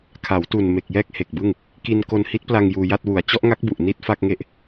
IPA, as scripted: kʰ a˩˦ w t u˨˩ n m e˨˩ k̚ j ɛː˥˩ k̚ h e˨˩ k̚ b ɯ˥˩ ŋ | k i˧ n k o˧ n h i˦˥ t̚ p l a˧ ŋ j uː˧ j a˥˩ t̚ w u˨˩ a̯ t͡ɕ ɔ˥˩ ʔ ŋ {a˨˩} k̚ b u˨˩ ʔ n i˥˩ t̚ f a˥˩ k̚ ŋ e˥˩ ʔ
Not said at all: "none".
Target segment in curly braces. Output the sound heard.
a˦˥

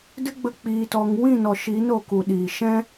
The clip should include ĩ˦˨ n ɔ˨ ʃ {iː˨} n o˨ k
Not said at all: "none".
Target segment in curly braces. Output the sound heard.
iː˨˦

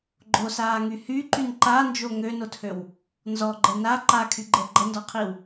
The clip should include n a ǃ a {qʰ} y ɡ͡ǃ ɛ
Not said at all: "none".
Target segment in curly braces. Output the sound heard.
kʰ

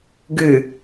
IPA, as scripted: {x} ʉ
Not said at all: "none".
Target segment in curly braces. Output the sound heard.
ɡ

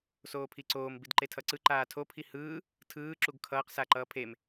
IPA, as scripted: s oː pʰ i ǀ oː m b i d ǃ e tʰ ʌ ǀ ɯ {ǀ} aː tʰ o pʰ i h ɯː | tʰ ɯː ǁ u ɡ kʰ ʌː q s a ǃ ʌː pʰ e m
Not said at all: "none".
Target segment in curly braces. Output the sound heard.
ǃ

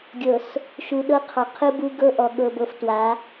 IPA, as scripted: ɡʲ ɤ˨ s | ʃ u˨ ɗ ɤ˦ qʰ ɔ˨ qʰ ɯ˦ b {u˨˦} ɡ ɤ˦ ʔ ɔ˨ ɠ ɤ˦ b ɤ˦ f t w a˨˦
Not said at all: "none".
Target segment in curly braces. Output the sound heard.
u˦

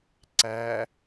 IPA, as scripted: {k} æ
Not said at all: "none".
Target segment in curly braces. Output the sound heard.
ǀ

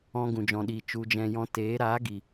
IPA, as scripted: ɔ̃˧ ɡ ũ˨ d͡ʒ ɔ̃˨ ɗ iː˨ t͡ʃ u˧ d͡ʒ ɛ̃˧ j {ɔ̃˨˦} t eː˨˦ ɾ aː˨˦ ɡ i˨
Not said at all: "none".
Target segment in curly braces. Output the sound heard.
ɔ̃˧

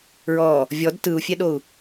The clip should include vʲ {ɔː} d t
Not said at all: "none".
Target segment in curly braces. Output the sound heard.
ɔ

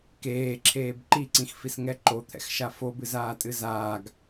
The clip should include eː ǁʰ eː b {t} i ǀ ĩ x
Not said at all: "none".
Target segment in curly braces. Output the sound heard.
ǃ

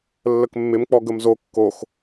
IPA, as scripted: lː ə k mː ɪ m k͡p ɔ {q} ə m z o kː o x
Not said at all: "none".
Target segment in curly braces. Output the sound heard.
ɡ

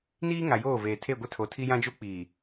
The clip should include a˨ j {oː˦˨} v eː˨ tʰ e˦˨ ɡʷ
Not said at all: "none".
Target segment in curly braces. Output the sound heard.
oː˦˨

